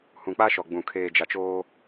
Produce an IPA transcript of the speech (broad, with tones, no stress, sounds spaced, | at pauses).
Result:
h ũ˨ k͡p a˦ ʃ ɔ˨ ɡ͡b ũ˨ kʰ eː˨ d͡ʒ a˨ t͡ʃ oː˦